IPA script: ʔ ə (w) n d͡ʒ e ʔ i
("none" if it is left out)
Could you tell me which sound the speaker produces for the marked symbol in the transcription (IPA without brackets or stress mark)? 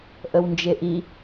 w